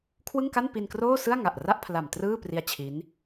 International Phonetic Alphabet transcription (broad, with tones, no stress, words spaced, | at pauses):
kʰwɯ˥˩ŋka˥˩npi˧nkroː˥˩ sɯ˥˩a̯ ŋa˨˩ʔra˥˩ʔ pʰla˨˩mtrɯː˥˩pri˦˥a̯ t͡ɕʰi˦˥n